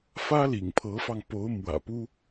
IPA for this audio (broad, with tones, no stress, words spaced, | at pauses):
fä˥lḭ˨˩ŋpʰɤ˧˥fɑ˧ŋ po˧˥ʊ̯ mwä̰˨˩pu˥